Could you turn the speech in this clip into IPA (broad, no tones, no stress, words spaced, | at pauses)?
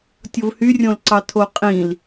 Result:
tʲovhyrʲõlǀɑ tʰoqʼĩl